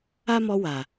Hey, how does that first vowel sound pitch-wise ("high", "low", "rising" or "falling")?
high